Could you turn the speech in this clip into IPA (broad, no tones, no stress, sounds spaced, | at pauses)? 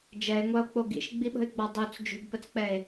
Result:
d͡ʒ ɛ e̯ ŋʷ a o̯ k͡p o ɡ ḭ ʃ ɡ͡b i ɓ ə̤ e̯ ɡ͡b ɒ dˤ o t͡s d͡ʒ ṳ b p ə t͡s k͡p ɛ e̯